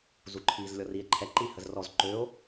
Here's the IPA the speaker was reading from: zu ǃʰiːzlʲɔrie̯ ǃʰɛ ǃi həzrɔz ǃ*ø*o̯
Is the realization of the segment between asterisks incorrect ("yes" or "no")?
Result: no